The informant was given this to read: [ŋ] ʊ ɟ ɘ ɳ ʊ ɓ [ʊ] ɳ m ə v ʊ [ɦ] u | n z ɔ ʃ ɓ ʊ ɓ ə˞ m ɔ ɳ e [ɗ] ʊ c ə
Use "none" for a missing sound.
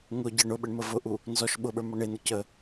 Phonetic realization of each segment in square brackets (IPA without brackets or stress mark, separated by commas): ŋ, ə, ʔ, n̪